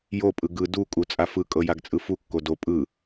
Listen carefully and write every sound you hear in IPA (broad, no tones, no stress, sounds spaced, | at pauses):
j o pʼ ɯ ɡ ɯ d u kʼ u t͡sʼ a f ɯ kʼ ɤ j a ɡ t͡sʼ ɯ f u kː o d o pʼ ɯ